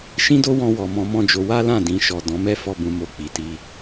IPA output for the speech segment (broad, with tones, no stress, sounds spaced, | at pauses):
ʃ ĩ˦ d o˦ w ɔ̃˧ w ɔ˨ m ɔ̃˧ m ɔ̃˦ d͡ʒ o˧ w a˦ l ã˦˨ d ĩ˧ ʃ ɔ˨ d ɔ̃˨˦ m ɛ˦ f ɔ˦ b ũ˧ m o˧ k͡p i˨ t i˧